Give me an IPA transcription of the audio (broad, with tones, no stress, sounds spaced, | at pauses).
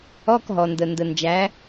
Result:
ɔ˧˥˧ k ɦ ɔ˩ n d ə˩ n d ə˩ n d͡ʒ æ˩˥